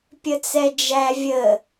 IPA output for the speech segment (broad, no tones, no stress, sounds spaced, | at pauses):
pʲ ə t͡s ɛ d͡ʒ æ vʲ ə